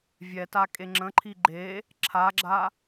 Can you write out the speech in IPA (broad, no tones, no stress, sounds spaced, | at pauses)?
vʲ ɛ t a kʼ e ŋ͡ǁ ə̃ ǃʰ i ɡ͡ǃ e | ǁʰ a ɡ͡ǁ a